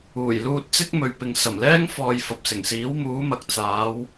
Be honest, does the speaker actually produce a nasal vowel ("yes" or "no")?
no